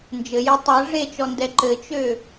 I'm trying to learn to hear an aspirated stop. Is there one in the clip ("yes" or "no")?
no